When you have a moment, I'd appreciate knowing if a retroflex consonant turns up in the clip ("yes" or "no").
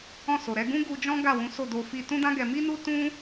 no